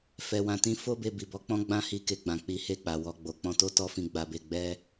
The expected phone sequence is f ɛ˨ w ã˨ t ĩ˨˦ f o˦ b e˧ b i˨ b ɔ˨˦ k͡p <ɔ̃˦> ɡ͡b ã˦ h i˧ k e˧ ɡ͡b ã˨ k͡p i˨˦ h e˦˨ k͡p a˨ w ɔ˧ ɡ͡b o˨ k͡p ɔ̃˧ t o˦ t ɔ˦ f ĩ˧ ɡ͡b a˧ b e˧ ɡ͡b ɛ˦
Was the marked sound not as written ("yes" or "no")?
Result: no